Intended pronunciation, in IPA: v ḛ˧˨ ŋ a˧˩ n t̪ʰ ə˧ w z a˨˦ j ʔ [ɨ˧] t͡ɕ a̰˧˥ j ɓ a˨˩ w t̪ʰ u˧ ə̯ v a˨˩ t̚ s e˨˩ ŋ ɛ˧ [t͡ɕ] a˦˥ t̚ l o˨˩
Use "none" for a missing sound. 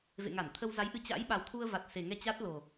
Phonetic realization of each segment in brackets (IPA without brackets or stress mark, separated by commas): ɨ˧, t͡ɕ